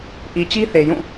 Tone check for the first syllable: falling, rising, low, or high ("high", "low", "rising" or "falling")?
low